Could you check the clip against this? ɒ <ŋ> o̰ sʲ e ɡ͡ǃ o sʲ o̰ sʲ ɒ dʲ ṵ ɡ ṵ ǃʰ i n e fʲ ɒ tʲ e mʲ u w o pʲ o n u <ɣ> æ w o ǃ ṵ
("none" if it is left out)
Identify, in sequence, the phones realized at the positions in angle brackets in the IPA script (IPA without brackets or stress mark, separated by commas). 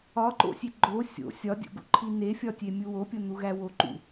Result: ǃ, ɣ